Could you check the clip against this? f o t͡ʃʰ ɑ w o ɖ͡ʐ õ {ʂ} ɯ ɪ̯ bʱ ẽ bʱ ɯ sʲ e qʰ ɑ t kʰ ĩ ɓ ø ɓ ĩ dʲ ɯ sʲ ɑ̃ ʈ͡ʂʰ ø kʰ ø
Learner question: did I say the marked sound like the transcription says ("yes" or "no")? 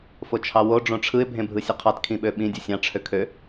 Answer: no